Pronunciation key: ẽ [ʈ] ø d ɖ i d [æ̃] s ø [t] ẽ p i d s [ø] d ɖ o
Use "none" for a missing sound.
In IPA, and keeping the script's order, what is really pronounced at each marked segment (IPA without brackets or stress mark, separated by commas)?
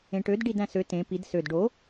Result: ʈ, æ̃, t, ø